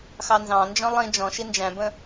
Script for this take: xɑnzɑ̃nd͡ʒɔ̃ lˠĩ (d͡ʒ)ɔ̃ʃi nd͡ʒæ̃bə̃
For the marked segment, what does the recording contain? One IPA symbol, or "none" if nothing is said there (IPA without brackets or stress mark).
d͡ʒ